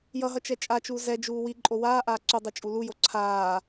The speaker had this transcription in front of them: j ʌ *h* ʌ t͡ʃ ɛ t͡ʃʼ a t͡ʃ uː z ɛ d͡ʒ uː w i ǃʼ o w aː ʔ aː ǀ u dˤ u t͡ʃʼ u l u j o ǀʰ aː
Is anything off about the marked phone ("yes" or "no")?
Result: yes